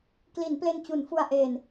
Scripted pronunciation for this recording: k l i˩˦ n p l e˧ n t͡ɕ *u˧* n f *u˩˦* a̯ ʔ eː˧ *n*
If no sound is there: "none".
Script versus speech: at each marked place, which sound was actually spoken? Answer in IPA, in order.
u˩˦, u˧, n

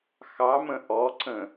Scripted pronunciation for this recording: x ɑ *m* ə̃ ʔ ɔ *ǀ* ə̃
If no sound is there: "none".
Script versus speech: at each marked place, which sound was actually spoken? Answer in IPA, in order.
m, ǀ

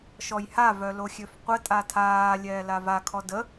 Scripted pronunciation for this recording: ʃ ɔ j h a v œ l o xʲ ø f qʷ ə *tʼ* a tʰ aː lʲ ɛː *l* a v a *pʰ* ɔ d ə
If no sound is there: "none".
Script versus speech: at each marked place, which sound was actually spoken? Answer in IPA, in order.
tʼ, l, kʰ

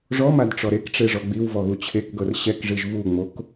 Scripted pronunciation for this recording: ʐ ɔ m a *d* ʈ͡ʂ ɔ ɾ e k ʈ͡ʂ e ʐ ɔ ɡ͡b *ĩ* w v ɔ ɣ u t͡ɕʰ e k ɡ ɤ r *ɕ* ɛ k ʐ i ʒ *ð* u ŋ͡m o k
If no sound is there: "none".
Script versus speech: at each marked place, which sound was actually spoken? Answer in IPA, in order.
d, i, ɕ, v

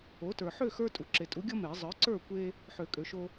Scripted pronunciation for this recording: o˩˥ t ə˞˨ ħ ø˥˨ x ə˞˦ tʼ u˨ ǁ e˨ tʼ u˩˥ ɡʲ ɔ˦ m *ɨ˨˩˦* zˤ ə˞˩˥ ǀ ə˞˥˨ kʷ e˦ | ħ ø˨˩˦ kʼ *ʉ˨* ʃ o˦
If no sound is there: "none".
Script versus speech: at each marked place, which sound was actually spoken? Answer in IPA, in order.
e˨˩˦, ø˨

